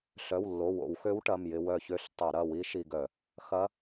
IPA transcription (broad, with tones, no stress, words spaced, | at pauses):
ɬœ˩˧˩wlːo˩˧˩wo̰˧˩˧wxø˧˥w ʈɐ˩˧˩mjɪ˧ wœ˧˩çø˧˥ɬ tˤɪ˧˩˧ɾɐ˩˧˩ wi˧˥ ʃi˧ɡœ˧˩˧ | xɐ˧˥